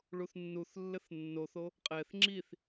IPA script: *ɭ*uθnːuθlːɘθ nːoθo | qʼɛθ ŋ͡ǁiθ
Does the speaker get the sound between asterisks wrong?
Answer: no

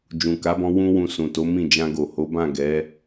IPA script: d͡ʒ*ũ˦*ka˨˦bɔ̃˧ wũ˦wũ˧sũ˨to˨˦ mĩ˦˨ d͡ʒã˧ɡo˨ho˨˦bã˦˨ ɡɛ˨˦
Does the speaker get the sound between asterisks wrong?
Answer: yes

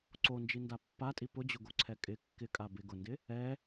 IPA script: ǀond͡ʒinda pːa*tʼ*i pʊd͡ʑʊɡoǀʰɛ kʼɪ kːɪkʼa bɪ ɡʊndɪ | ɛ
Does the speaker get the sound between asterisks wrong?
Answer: no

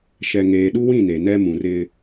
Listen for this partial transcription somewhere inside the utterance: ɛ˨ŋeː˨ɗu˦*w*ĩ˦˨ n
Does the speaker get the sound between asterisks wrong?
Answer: no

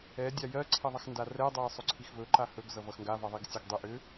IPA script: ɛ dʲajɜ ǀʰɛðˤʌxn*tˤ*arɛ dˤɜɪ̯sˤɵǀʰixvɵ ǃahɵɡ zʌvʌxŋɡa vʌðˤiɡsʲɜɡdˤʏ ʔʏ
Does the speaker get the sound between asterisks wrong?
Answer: yes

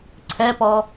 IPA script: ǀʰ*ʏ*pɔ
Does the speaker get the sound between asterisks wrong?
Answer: yes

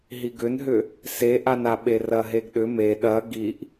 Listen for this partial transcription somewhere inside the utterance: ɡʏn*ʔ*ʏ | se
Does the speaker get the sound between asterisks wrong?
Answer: yes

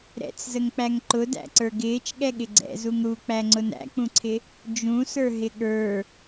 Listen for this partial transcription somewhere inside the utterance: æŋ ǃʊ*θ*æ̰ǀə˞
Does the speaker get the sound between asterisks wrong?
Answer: yes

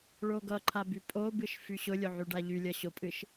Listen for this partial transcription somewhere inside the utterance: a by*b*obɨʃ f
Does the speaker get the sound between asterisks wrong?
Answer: yes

